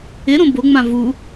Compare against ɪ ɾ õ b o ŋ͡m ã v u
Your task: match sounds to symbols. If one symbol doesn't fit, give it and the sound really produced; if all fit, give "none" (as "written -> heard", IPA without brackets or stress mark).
none